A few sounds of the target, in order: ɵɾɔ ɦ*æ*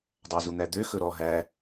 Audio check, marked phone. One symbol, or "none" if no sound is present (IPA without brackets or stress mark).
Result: æ